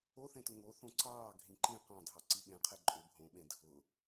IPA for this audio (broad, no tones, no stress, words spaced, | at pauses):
oθẽtʊ ŋo θõǀɑː ɡʱĩǃĩ qɑ̃dʱɑ ǀiɓẽqʰɛ ǃʼʏ bʱõɓẽ dʱʊ